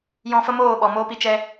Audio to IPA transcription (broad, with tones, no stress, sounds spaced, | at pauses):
j ɔ̃˧ f ə˦ m oː˦˨ ɓ ɔ˨ m oː˦ p i˧ t͡ʃ ɛ˧